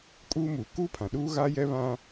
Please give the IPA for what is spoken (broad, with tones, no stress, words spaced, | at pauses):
kʼuː˦muː˨ kuː˦pʰã˨ɗuː˦ ɣa˦jɛ˦βã˦